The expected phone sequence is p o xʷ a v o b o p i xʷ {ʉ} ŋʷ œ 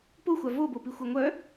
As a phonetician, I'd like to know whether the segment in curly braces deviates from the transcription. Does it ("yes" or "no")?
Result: yes